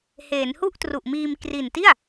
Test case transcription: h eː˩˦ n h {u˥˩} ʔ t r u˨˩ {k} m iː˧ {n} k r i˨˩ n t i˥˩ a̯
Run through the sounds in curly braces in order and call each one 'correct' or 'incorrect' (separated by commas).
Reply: correct, incorrect, incorrect